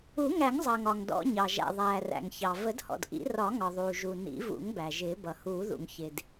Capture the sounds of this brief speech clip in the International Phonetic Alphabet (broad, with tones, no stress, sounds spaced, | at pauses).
u˨˩˦ ŋ æ˨˩˦ ŋ zˤ ʌː˩ ŋ ɒ˩ ŋ d ɔ̰˨˩˦ ɲ ɑ˩ ʒ æ̰˩ ðˤ æː˩ r æ̰˩ ŋ ç ɑ˩ v ə˨˩˦ d h ɔ̰˩ d ʔ ḭ˨˩˦ r ɒ˨˩˦ ŋ ɒ˩ ðˤ uː˩ ʒ u˩ n ḭ˨˩˦ v ṵ˨˩˦ ŋ b æ˩ ʒ ɪː˨˩˦ b ʌ˩ h uː˨˩˦ ð ṵ˩ ŋ ç ɪ˩ d